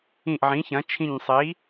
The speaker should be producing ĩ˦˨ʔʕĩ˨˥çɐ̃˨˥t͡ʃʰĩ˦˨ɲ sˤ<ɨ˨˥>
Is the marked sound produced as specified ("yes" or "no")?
no